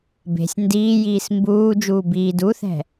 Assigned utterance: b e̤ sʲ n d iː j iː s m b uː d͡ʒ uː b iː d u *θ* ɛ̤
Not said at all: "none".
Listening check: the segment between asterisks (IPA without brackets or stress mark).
θ